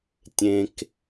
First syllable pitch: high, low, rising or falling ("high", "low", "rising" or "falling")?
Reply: low